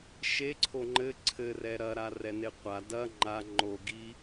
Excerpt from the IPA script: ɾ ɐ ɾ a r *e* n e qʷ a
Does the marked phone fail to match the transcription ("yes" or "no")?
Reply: yes